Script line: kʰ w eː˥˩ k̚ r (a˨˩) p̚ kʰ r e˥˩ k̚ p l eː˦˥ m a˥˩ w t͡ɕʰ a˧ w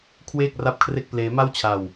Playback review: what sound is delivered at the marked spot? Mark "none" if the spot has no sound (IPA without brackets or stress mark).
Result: a˥˩